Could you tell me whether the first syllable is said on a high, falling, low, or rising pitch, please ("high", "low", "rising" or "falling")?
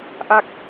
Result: falling